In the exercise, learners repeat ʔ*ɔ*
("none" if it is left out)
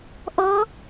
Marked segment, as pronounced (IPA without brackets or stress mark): ɔ